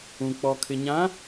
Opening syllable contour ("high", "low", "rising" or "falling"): low